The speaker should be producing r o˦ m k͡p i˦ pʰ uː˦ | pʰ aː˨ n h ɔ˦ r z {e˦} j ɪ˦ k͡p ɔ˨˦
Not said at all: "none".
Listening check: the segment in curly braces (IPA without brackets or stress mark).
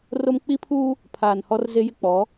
e˦